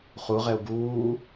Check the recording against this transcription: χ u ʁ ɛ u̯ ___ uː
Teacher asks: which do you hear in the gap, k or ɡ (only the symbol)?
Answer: ɡ